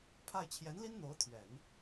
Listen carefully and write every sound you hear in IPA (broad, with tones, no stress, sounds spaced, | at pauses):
pʰ a˥˩ ɪ̯ t͡ɕʰ j ɛ˧˥ n l i˥ n n̪ o˧˥ ʊ̯ t̪ʰ ɥ ɛ˨˩˦ n